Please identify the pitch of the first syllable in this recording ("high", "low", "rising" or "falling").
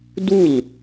falling